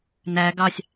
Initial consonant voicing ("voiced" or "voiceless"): voiced